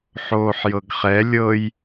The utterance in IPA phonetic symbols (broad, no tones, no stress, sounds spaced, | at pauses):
ħ oː ħ j ɤ ɡ χ ɛ lʲ ɤ j